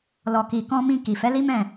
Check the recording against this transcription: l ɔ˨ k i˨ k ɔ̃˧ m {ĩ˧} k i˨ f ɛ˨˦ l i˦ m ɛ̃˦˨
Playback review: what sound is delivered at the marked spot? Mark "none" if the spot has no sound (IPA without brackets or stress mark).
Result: ĩ˧